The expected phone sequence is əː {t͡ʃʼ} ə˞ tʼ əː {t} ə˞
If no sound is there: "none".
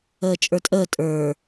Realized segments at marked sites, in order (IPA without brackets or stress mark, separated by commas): t͡ʃʼ, tʼ